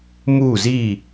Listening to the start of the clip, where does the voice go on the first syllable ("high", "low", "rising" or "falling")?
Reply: falling